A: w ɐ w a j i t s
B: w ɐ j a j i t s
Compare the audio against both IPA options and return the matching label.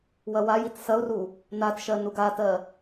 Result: A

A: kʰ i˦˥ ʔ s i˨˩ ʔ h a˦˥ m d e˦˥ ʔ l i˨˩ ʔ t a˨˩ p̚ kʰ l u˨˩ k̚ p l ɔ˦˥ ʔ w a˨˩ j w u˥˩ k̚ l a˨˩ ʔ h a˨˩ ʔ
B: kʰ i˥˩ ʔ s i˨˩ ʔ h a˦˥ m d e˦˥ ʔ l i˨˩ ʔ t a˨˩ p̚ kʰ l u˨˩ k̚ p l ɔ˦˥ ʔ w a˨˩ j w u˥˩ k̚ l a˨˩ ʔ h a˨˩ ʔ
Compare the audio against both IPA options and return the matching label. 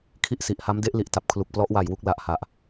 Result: B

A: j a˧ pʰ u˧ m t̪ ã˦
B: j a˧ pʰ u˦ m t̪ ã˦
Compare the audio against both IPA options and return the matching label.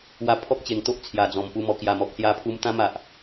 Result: A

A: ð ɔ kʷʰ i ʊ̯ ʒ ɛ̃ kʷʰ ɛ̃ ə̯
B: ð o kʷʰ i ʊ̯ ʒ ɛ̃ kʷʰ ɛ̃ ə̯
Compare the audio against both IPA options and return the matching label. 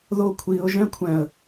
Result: B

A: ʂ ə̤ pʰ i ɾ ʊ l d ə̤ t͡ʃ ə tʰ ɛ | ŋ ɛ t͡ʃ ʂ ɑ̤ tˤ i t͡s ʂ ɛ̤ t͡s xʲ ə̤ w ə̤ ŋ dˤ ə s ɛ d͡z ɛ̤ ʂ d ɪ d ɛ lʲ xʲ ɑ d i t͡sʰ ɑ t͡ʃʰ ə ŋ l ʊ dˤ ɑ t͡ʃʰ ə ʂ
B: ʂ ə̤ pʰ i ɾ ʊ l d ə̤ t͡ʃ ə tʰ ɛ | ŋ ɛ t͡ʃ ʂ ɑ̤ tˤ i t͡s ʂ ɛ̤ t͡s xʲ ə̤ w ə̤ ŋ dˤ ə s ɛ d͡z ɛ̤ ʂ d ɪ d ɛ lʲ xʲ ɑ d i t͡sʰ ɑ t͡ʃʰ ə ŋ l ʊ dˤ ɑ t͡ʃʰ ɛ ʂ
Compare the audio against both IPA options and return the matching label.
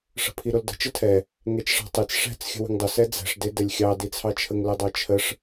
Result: A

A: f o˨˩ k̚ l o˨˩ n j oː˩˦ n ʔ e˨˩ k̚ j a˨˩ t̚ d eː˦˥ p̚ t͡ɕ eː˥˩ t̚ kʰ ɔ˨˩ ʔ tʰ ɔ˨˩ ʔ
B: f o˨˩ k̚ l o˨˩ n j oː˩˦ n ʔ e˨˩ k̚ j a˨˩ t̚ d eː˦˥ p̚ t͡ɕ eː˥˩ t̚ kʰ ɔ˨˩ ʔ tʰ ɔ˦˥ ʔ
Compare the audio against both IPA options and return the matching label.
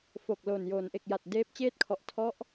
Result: B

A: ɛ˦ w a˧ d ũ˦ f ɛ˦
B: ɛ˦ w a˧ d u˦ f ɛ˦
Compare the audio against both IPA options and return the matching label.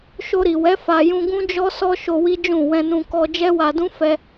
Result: A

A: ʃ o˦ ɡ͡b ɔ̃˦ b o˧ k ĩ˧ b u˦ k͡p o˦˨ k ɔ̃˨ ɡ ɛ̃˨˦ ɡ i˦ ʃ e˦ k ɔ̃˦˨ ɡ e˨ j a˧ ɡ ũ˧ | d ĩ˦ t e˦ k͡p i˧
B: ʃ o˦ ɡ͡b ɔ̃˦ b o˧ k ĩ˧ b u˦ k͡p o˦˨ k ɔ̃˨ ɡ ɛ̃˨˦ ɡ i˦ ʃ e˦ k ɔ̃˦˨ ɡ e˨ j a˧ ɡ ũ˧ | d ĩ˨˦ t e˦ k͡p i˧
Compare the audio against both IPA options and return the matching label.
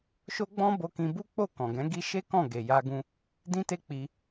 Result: A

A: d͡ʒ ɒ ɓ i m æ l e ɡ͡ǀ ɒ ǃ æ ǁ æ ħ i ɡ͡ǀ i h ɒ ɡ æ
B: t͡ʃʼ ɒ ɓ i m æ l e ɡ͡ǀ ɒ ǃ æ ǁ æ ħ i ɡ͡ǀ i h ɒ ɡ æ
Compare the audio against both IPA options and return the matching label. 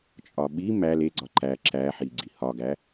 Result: B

